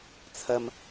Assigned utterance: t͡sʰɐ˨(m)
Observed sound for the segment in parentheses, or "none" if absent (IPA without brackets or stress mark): m